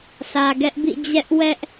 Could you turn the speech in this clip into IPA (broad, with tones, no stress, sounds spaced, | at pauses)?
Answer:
sʰ ä˨ ɡ ɛ˦ ʔ b ḭ˦˨ d͡ʑ ɛ˦ ʔ w ɛ˦ ʔ